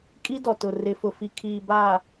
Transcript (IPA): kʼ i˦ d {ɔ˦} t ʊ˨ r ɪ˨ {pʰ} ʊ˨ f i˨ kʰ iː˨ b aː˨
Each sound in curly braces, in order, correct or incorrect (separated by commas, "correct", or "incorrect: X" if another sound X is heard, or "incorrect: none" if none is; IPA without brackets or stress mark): incorrect: ɔ˨, incorrect: f